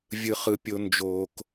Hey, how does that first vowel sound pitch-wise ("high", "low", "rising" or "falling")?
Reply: low